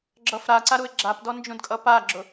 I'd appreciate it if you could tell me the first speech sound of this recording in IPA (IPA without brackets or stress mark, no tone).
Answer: ɡ͡ǁ